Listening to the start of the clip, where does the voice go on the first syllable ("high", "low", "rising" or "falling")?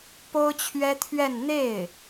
high